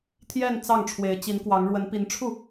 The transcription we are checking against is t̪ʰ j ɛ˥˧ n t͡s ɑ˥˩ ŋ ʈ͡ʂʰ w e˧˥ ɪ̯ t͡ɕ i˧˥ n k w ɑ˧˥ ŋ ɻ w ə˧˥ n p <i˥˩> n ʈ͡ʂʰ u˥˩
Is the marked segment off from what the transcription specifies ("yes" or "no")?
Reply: yes